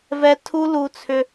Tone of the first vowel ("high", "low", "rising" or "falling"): high